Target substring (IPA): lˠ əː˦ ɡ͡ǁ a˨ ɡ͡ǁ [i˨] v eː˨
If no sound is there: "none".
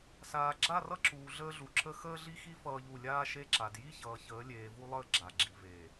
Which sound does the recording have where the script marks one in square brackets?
i˨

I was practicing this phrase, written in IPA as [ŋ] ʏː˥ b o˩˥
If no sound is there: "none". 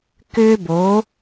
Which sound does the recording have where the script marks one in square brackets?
k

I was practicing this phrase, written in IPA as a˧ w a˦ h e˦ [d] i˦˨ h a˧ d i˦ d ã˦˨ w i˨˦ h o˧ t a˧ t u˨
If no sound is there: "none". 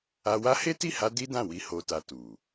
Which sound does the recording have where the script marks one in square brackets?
t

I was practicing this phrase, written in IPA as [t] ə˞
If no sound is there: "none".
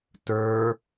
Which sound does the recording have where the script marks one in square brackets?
t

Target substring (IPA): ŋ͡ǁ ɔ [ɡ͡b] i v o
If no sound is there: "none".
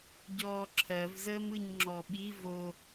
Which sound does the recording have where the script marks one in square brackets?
ɓ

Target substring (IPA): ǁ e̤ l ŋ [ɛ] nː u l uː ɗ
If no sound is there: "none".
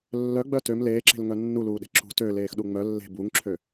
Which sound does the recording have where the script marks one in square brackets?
œ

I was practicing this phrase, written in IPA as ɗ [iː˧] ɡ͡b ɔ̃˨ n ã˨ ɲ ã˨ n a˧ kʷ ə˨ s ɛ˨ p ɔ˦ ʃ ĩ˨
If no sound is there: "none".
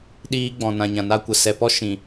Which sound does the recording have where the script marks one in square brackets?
iː˧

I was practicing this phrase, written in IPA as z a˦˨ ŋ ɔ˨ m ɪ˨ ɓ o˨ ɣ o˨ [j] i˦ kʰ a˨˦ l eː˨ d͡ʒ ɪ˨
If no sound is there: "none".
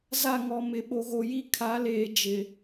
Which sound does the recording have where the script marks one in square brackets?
j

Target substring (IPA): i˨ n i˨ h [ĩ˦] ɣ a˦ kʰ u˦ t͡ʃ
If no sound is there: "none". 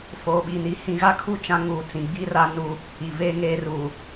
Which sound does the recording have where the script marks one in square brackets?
ĩ˨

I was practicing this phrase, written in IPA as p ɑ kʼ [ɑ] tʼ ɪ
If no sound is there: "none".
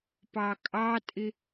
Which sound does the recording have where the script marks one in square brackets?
ɑ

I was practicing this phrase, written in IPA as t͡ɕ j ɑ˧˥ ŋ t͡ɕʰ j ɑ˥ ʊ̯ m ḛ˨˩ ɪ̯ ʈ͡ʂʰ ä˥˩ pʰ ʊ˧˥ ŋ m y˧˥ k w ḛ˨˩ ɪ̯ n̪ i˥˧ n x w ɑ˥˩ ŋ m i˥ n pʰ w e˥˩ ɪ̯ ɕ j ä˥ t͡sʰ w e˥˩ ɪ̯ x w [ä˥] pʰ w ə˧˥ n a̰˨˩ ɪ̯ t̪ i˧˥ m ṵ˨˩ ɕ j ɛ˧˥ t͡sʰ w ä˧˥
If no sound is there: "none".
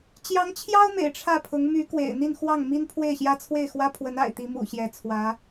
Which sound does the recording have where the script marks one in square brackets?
ä˥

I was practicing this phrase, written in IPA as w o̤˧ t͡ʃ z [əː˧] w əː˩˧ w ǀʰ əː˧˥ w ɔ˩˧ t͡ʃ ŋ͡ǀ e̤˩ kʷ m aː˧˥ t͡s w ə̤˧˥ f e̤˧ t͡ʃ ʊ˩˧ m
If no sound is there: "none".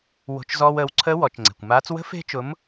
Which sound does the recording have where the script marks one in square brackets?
ɔː˧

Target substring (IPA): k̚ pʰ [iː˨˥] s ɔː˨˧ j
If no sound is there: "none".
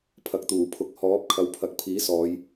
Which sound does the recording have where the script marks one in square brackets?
iː˨˥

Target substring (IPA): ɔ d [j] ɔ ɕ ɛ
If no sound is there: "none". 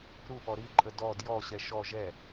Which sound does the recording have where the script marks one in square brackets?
j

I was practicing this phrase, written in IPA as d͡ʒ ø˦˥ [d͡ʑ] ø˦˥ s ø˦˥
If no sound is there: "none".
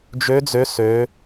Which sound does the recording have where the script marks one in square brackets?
d͡z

